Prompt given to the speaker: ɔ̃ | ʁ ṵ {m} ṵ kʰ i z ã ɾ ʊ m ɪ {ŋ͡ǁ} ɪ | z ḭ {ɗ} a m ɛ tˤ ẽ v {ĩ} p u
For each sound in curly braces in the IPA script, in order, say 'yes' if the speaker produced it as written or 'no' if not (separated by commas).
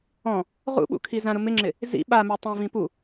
no, yes, no, yes